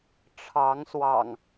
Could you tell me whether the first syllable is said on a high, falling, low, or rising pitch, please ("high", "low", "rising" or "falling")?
rising